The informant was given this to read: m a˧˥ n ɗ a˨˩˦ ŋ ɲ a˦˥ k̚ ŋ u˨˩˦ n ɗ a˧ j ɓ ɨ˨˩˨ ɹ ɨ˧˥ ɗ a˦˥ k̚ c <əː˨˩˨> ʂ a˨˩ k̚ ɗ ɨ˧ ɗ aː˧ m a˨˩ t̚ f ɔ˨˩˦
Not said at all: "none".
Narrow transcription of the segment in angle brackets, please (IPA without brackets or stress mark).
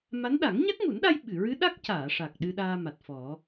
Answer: aː˨˩˨